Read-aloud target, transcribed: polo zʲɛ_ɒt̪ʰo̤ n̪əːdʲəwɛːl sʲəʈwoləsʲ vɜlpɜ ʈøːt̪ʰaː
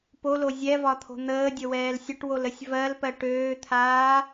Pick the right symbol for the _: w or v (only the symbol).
v